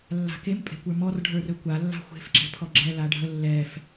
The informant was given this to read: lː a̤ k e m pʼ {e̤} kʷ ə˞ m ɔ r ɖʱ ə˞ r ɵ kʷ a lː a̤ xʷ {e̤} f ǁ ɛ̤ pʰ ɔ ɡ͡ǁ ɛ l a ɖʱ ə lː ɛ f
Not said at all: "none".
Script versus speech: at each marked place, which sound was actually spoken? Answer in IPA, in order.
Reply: e̤, e̤

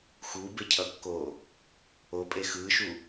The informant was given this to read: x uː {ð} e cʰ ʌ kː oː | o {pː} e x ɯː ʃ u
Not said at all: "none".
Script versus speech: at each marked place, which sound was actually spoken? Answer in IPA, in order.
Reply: b, pʼ

